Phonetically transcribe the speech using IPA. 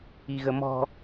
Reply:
i ɣ ə m ɔ̤

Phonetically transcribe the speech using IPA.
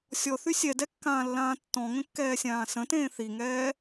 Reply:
sʲ ɔ θ y sʲ ɛ d ɛ kː ãː lː ãː tː ɔ̃ ŋ ə̃ kː ɛː sʲ ãː s ə̃ t ẽː θ i ŋ ɛː

